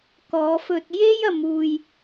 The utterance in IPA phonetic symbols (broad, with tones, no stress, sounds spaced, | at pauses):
k ɔː˨˧ f ɵ˧ t̚ j e˥ j ɐ˨˧ m uː˧ j